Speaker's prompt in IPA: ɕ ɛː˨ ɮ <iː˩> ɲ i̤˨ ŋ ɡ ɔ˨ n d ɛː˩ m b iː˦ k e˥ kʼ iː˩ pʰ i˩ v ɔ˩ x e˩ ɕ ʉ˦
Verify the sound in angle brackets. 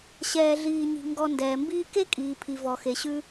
incorrect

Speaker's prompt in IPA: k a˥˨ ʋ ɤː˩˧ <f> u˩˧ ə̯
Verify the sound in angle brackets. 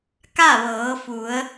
correct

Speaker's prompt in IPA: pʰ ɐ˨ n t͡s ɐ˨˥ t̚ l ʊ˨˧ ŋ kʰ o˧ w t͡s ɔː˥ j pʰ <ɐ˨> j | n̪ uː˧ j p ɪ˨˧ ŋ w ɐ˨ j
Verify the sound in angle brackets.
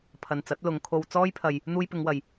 incorrect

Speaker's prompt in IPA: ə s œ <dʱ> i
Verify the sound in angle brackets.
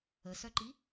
incorrect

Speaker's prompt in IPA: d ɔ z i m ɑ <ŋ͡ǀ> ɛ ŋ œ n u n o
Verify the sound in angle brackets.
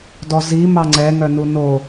correct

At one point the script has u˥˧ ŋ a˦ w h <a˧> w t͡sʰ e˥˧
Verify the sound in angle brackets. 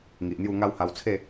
correct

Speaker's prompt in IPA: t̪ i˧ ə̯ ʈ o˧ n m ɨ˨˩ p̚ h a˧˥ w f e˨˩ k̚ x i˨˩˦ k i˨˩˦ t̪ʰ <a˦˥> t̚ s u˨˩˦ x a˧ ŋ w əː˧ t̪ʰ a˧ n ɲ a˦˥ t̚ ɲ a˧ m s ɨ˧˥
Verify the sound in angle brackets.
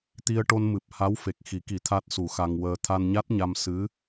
correct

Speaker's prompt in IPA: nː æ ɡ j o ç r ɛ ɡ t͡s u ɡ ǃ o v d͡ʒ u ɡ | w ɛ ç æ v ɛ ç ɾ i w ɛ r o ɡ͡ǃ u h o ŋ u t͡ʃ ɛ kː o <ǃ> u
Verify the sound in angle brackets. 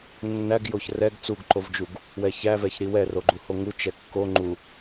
incorrect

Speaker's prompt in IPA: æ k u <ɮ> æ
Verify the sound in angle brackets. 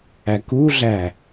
correct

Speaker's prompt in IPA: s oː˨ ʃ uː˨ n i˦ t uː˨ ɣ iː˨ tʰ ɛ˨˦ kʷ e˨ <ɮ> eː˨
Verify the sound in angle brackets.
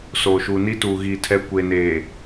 incorrect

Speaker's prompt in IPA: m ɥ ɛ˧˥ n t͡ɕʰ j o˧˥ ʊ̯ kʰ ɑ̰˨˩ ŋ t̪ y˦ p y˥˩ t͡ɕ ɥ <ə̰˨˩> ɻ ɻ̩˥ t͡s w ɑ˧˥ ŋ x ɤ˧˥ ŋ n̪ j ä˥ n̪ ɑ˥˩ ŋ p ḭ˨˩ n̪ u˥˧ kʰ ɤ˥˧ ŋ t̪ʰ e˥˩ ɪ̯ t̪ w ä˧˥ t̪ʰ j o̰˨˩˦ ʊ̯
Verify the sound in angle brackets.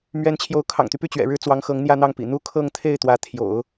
incorrect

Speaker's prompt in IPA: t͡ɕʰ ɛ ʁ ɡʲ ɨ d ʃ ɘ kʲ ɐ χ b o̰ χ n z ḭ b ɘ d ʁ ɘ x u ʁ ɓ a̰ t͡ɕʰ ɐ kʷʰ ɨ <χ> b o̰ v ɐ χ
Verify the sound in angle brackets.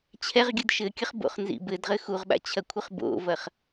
correct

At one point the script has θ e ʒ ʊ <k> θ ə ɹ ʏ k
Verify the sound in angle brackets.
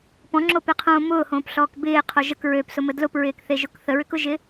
correct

